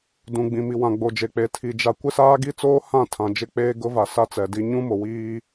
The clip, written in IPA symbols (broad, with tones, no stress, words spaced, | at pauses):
dũ˨ɡ͡bĩ˨ mi˨wã˨ɡ͡bo˨d͡ʒe˨ k͡pe˨tʰi˨ d͡ʒa˨ kʷɪ˦saː˦ɡi˦t͡soː˦ hã˦˨tʰã˨d͡ʒɪ˦ k͡peː˦ɡʊ˦va˨ sa˦t͡sɛ˨di˦ ɲũ˦mo˨wiː˦